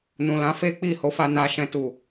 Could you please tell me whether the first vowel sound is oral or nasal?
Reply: nasal